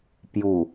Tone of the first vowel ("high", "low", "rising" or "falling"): low